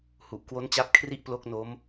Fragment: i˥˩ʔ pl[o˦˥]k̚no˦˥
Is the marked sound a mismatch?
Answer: no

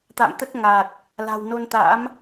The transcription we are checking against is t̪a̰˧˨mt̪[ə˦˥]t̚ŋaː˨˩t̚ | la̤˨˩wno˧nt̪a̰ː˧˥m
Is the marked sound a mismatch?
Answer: no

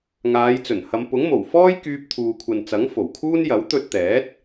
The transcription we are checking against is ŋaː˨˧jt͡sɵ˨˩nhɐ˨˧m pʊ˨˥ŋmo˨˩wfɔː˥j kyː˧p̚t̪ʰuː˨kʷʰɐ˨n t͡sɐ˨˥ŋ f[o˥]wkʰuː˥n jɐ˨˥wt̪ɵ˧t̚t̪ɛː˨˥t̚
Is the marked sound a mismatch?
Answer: yes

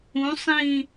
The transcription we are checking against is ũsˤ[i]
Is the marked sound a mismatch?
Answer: yes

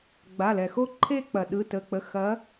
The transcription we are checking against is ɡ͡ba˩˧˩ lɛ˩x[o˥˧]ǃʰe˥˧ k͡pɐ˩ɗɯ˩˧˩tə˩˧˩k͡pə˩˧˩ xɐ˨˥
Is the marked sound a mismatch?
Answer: no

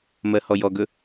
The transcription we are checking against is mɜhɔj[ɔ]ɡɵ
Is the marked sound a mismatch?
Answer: no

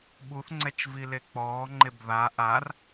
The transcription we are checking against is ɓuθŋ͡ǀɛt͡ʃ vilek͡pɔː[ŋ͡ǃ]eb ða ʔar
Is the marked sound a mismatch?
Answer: no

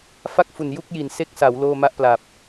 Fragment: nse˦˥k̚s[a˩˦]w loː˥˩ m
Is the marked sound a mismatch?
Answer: no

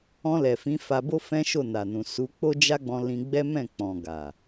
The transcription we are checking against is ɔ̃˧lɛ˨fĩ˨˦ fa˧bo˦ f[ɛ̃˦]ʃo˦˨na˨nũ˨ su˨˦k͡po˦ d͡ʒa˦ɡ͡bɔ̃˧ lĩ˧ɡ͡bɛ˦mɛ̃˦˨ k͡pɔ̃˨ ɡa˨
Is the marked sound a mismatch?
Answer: no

